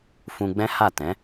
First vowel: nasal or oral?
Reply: nasal